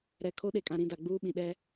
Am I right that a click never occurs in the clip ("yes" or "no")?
yes